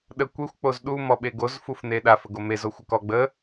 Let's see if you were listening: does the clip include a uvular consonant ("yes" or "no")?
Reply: no